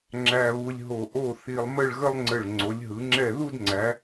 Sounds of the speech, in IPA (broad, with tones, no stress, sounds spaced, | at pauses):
ŋ͡ǁ æ˧ β u˧ lʲ ɦ o˧˩ ʔ o˥˧ θ i˧ lˠ m ə˥˧ ɭ ɣ ə˥ lˠ ŋ͡ǀ ə˧˩ ɭ ŋ͡ǀ o˩˧ lʲ ɦ ɯ˩˧ ŋ͡ǁ ɛ˧˩ ð u˥˧ d ŋ͡ǀ æ˩˧